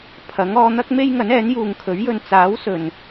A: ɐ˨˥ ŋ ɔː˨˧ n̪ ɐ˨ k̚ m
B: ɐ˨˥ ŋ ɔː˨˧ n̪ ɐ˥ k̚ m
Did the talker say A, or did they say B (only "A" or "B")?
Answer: B